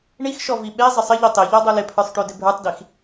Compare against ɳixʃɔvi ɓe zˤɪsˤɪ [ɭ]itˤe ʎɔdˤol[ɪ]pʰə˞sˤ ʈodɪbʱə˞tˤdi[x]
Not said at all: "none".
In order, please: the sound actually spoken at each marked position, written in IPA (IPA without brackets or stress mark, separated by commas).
ʎ, ɪ, x